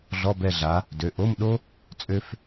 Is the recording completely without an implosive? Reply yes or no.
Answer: no